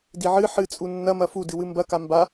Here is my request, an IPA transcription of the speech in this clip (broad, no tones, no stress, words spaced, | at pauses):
diʕɨ ħɨt͡sʼu nːɐmɐ fudɨ wɨmbɐka mba